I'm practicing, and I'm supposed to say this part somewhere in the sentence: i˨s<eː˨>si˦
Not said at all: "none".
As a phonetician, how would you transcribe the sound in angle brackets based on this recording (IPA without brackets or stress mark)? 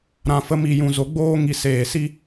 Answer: eː˨